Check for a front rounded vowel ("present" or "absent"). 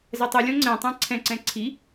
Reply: absent